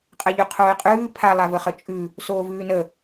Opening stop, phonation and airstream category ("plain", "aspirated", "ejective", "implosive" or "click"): ejective